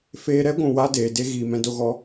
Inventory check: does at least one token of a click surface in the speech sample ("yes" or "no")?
no